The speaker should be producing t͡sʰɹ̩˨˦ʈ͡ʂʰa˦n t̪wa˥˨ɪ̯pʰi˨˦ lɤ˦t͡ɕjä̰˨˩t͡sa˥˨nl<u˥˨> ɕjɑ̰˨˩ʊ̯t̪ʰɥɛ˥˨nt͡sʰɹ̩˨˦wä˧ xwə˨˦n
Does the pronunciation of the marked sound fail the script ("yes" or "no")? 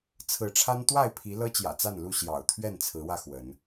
no